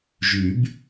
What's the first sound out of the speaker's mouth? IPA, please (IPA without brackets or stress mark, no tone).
ʒ